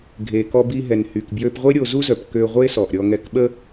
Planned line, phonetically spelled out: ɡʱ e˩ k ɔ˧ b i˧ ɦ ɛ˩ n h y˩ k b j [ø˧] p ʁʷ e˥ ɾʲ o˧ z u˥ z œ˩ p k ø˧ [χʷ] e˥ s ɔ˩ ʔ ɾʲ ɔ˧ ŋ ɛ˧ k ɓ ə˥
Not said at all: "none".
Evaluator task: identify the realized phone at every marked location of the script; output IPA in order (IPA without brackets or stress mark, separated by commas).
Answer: ø˧, ʁʷ